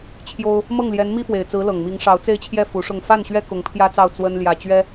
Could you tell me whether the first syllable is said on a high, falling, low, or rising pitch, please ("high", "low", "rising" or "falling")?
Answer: high